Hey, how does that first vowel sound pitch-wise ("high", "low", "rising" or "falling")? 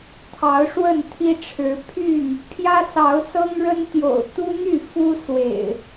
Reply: rising